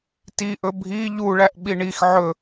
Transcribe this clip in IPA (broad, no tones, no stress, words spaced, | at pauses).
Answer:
tiʔɵ bʱi ʎuɭæʔ ɓiɳix ʕɵ